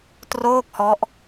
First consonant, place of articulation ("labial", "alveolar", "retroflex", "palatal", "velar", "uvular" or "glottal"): alveolar